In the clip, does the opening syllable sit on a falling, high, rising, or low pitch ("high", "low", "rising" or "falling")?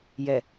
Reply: low